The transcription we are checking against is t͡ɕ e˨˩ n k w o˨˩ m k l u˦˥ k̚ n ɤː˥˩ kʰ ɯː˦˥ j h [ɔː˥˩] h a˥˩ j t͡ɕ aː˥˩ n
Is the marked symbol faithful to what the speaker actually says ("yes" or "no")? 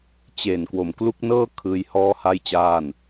yes